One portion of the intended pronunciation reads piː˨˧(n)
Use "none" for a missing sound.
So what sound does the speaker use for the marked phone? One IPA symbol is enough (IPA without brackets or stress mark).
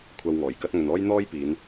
n